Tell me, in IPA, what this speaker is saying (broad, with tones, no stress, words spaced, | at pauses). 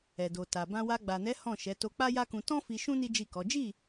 ɛ˨do˨ta˨ bã˧ wa˧ ɡ͡ba˨nɛ˨˦ hɔ̃˦˨ʃɛ˨˦ to˧k͡pa˦ja˦kũ˧ tɔ̃˦ fi˧ʃũ˦ ni˦d͡ʒi˦˨kɔ˨˦ d͡ʒi˦˨